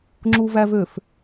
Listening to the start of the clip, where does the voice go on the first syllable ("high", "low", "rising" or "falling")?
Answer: low